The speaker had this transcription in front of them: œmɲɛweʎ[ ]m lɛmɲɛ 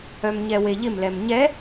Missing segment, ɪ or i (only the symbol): ɪ